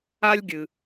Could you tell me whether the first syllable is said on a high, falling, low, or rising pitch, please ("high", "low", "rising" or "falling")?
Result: high